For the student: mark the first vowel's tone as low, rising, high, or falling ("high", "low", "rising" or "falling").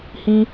high